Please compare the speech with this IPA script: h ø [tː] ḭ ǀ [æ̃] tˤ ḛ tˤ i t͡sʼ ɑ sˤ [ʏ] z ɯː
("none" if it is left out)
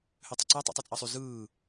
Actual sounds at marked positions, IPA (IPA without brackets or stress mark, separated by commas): tˤ, æ, y